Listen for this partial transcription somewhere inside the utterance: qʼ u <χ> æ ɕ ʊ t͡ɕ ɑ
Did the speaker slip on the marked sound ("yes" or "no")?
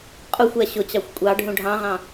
yes